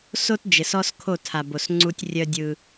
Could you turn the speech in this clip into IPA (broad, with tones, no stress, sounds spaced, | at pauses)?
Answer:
s o˦ t d͡ʒ ɘ˨ s ɔ˦ s kʰ o˦˨ tʰ a˨ b o˨ s ŋ͡ǀ u˦ tʲ rʲ œ˦ dʲ ɯ˦